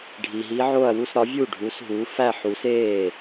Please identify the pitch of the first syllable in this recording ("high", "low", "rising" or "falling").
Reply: low